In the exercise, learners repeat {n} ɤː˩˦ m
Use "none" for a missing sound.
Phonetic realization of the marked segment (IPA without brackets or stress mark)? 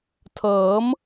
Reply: tʰ